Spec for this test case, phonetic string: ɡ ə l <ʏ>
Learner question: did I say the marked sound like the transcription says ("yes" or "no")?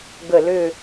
yes